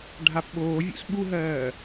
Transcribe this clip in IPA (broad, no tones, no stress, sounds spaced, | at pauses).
ɖʱ a p ɓ oː vʲ ṵ s ɓ u ɦ ɜː